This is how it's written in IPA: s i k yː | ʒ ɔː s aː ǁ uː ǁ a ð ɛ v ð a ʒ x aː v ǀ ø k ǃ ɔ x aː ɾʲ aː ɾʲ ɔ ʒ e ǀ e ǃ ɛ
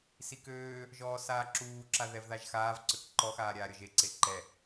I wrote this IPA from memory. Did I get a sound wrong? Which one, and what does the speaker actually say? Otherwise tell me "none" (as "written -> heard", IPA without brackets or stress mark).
yː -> øː